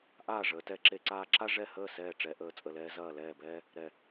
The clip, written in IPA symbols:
ʔ aː˥˩ ʐ əː˩˧ t ɛ˧˩ ǁ e˧ ǀ aː˧ ǁ a˥ ʐ ɛ˥˩ h əː˥˩ s ɛː˧˩ ʈ͡ʂ ɛ˩˧ ʔ əː˧˩ t͡sʼ ə˧˩ l ɛː˥ z ɐː˥˩ l ɛː˥˩ b ɛː˥ | ɾ ɛ˧˩

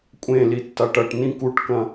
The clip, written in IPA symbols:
kʷʼ ẽ l i tː a ʈ ɐ ʈ n ĩ k u ʈ k ɐ̃

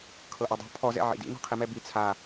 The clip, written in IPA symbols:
kʰ ɤ ʔ ɔ dˤ ṳ pʰ ɔ z ɛ̰ ʕ ḭ d ḭ n ɔ̤ qʰ i m ɛ b i t͡sʰ a

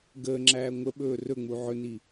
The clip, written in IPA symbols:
ɡ əː ŋ͡ǁ æː ŋʷ ə ɓ ɵː r ɵ ŋ͡m u ʕ ɵ n i

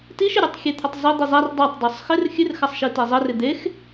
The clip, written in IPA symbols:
t i ʃ ɪ ɾʲ o tˤ xʲ e t̪ʰ ɪ tˤ zˤ ɘ d̪ i zˤ a r dˤ a tˤ dˤ o sˤ x ɪ r xʲ ɨ r x a sˤ ʃ i t e zˤ ɘ r ɪ d̪ e x

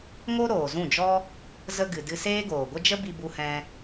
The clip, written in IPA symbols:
ŋ o˦ ɾ oː˨ z ũ˦˨ d͡ʒ ɔ˦ | z ə˧ ɡ ɨ˨ d ɨ˧ s eː˦ ɡ oː˨ ɡʷ ə˦ d͡ʒ ə˦ b i˧ b u˧ h ɛ̃˧

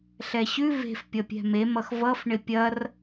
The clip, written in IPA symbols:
ɬ ɛ ɕ ʉ v e̤ f pʲ ʌ pʲ ɛ̤ m e m ʌ x v ʌ f ɳ ɪ pʲ ɐ r

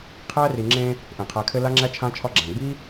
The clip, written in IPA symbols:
qʰ æ˥ r i˨ ŋ͡ǁ ẽ˦ | ʔ ẽ˩ qʰ æ˨ kʰ ɘ˦ l a˥ ŋ͡ǁ æ˥ t͡ʃʰ ã˦ t͡ʃʰ ɒ˦ ɡ͡ǁ æ̃˩ ɡ͡b i˥

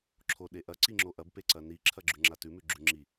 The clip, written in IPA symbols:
ǁʰ o ɗ e ʔ ɐ ǀ i ŋ͡ǁ o ʔ ɐ b p e ǀ ɐ n i ǁʰ ɐ ɡ͡ǁ ʉ ŋ͡ǁ a t ʉ m ʉ ɡ͡ǁ ʉ ŋ͡ǁ i

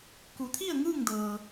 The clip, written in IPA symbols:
k u˩˧ t̪ʰ i˥˨ ə̯ ŋ ɯː˥˨ ŋ d ɤː˩

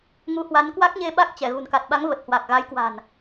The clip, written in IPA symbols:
ŋ u˨˦ h w a˨˦ n k w a˦˥ k̚ ɲ e˧ ɓ a˦˥ k̚ t͡ɕ ɛ˧˩ ɣ ṳ˨˩ n k a˨˩ t̚ ɓ a˨˦ ŋ v ə˨˩ t̚ h w a˨˩ k̚ ɣ a˨˦ j k w a̤˨˩ n

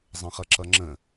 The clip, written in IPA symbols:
zˤ ə̃ χ ʌ ǁ ʌ ŋ͡ǁ ə̃

